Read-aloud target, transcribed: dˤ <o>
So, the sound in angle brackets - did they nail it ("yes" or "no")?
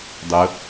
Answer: no